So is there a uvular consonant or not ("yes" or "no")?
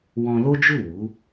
no